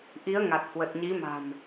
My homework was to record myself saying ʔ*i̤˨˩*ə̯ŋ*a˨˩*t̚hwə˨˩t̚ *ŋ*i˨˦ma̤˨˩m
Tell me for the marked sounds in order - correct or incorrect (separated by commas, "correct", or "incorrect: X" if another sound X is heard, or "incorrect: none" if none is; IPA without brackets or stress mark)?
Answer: incorrect: i˨˦, correct, incorrect: ɲ